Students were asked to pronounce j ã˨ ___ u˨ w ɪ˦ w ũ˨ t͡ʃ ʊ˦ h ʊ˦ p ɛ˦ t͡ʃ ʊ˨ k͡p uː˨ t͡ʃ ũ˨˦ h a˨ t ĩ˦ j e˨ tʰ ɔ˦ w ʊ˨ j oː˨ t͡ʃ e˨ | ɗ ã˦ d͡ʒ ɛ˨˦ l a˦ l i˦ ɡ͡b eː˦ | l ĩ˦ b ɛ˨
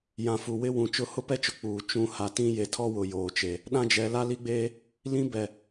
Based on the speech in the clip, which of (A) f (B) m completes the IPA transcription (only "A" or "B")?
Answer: A